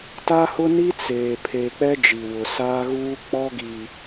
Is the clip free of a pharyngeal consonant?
yes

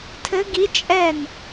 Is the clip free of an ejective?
no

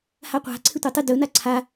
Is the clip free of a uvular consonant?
no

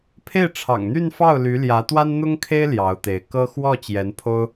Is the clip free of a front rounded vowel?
no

